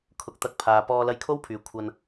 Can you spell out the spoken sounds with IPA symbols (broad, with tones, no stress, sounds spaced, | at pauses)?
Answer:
kʰ ʊ˨˥ k̚ t̪ ɐ˨˥ k̚ pʰ aː˨ p ɔː˧ l ɐ˧ j kʰ o˥ w pʰ yː˨ kʷʰ ɐ˧ n